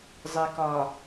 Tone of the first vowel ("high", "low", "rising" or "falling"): low